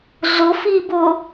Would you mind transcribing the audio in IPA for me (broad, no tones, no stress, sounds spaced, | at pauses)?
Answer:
ɮ ʊ f iː b ʊ